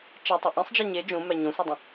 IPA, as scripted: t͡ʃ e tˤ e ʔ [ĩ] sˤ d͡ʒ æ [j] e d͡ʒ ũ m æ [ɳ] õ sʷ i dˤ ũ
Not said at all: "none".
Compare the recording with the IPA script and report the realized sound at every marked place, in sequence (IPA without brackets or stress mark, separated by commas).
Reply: ẽ, ɲ, ɲ